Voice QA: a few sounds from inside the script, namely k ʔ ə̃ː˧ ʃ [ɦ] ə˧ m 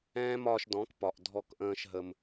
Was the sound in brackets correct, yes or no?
yes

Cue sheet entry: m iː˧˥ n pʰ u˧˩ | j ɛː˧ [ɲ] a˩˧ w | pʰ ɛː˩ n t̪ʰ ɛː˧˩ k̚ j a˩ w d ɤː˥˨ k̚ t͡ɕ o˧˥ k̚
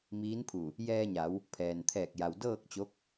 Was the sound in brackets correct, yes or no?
yes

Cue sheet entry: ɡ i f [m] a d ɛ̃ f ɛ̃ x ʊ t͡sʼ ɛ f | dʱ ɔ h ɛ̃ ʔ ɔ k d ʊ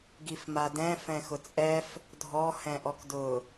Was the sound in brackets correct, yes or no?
yes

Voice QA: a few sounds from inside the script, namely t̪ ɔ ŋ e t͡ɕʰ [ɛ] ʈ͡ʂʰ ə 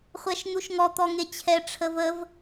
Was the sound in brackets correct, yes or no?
yes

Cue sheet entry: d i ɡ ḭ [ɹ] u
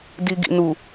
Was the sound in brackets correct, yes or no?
no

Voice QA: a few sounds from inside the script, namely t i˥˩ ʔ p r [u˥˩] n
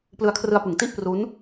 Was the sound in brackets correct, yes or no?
no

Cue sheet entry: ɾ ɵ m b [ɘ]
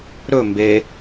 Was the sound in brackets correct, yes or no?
no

